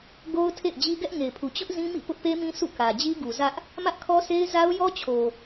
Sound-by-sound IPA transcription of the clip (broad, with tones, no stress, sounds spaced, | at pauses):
ɡ o˦ ʊ̯ tʰ ḛ˦˨ ɪ̯ d͡ʑ i˦ ɡ ɛ˦ ʔ ŋ e˨ ɪ̯ pʰ u˨ t͡ɕ ʊ˦ ʔ z ĩ˦ m ḭ˦˨ p ʊ˦ ʔ p e˦ m ĩ˦ s ṵ˦˨ k ä˨ d͡ʑ i˦ ɡ u˨ z ä˦ ʔ | m ä˦ ʔ kʰ ɔ˦ sʰ e˦ ɪ̯ z a˦ ʊ̯ j ɔ˦ t͡ɕʰ o˨